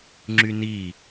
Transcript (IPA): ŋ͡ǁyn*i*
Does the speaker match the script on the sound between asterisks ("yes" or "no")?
yes